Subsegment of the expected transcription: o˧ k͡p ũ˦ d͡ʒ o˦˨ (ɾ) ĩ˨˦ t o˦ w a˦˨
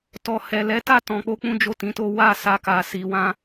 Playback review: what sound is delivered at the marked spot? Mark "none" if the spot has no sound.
t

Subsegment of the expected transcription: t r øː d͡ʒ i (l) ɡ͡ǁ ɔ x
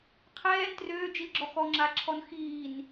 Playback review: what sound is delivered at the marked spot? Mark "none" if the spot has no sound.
l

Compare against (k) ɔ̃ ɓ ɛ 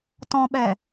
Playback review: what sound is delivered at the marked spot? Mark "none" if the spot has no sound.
t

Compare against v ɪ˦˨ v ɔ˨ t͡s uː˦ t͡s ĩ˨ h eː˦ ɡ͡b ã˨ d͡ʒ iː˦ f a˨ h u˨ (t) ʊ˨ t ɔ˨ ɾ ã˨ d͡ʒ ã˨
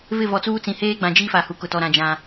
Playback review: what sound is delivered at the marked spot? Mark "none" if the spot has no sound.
k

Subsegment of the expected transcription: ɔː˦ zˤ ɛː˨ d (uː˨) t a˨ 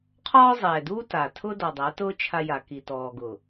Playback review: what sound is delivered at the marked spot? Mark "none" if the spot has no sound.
uː˦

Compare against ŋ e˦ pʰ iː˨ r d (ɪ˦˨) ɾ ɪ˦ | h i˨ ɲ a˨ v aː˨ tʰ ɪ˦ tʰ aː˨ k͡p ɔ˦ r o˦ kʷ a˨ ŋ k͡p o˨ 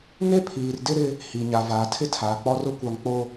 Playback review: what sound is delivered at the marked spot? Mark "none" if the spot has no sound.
ɪ˦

